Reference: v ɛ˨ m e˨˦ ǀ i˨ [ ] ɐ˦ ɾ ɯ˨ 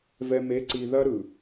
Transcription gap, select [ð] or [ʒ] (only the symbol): ð